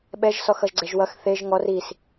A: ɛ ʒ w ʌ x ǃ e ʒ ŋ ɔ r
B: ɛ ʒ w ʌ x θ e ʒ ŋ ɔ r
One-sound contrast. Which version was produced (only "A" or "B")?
B